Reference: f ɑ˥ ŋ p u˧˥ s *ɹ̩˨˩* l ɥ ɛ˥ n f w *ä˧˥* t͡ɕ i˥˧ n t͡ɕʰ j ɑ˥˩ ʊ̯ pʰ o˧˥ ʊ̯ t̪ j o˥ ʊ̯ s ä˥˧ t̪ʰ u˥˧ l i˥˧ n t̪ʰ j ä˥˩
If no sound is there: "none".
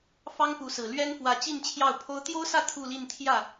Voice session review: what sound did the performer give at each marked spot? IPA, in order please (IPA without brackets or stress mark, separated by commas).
ɹ̩˨˩, ä˧˥